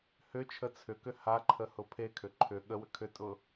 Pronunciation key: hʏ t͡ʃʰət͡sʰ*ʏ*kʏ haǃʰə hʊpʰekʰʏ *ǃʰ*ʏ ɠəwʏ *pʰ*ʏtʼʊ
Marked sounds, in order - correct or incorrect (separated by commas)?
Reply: correct, correct, incorrect